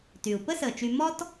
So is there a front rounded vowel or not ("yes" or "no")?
yes